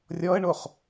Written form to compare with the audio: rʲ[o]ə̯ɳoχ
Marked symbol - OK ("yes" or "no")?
no